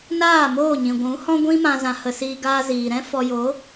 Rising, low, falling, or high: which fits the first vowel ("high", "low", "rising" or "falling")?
falling